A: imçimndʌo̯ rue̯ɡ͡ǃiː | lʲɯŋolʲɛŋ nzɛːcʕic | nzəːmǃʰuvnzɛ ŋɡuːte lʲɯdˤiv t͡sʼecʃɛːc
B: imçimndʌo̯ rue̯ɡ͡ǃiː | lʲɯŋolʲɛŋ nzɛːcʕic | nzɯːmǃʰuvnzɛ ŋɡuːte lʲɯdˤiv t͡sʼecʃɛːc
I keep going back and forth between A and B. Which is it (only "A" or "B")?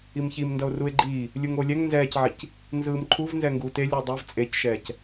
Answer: B